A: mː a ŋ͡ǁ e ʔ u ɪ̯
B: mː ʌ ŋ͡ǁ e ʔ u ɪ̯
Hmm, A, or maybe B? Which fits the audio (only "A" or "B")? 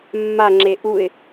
A